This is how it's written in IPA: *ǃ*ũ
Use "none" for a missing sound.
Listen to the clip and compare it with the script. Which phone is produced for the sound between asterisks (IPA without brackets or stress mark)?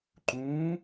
ǃ